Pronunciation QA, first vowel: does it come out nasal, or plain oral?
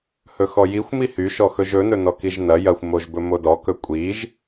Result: oral